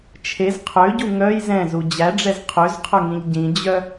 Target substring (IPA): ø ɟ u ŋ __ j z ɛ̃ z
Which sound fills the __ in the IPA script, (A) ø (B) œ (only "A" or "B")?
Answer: B